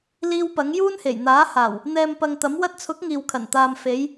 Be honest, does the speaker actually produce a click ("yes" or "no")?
no